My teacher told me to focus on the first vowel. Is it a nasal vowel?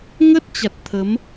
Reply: no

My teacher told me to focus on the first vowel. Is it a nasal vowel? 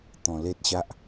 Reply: yes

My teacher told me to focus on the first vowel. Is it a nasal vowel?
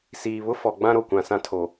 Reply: no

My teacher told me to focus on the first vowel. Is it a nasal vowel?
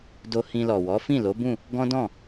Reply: no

